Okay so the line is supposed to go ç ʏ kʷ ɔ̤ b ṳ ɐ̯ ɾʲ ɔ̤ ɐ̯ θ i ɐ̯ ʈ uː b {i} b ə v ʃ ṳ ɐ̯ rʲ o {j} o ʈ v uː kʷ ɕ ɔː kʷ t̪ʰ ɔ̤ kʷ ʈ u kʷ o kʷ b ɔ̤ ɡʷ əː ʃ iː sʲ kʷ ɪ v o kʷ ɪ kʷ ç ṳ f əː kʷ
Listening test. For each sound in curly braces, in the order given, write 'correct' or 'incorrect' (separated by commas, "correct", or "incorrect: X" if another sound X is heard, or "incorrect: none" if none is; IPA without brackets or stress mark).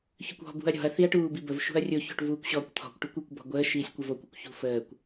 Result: correct, incorrect: ç